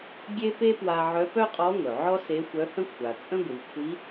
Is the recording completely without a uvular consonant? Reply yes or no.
no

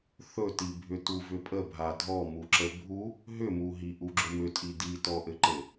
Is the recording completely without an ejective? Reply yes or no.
no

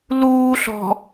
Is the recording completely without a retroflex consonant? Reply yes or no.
yes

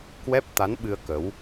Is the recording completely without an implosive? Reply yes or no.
no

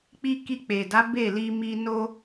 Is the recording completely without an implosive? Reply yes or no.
yes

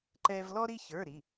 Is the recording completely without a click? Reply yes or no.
no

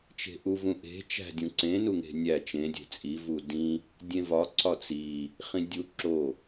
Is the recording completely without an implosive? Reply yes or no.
yes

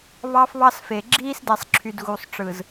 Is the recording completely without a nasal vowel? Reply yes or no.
yes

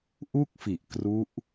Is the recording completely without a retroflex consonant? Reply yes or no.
yes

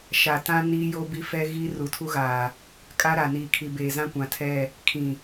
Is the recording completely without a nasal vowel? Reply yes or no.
no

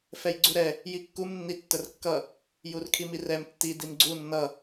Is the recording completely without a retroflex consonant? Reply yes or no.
yes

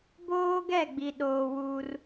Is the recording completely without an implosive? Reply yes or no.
no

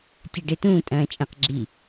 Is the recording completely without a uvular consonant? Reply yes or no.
no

